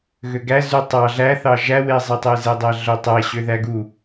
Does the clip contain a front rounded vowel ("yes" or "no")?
yes